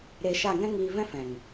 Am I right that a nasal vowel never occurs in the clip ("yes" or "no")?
no